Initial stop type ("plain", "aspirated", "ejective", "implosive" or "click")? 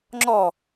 click